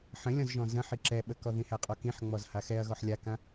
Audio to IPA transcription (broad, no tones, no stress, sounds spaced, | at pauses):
ħ ə̃ lʲ ɔ̃ z ʒ ɔ̃ z ə̃ ħ i ǁ ɛ ɓ ə k ɔ ð ĩ h æ qʼ ɔ k ĩ ħ ŋ͡m ɔ z h a x ɛ ɐ̯ ɣ ɔ ħ lʲ a k ã